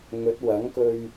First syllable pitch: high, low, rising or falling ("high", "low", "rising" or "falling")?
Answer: rising